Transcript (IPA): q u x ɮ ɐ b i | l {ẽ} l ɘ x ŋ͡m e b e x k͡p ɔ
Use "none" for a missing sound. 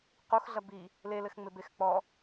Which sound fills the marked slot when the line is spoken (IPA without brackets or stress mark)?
e